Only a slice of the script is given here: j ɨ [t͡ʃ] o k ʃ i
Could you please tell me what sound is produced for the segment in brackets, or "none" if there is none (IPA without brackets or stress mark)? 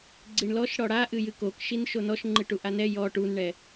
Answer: k